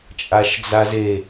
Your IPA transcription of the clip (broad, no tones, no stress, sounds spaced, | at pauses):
t͡ʃʼ a ʃ d͡z a z e